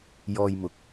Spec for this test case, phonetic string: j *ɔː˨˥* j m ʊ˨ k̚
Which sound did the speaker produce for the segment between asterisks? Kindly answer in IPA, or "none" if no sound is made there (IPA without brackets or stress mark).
ɔː˧